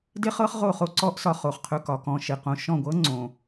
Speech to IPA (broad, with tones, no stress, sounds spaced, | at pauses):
d e˥ χ ɤ˥ χ ʁ o˥˩ χ o˥˩ ǀ ɔ˥ ʔ s ɒ˧ χ o˩ χ qʰ ɵ˧ k ɒ˩ k ɔ̃˧ ʃ e˩ q õ˥˩ ʃ ɔ̃˥˩ ɡʷ ɤ˥ ŋ͡ǀ õ˩